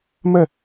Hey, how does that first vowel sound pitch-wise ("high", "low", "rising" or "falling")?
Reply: falling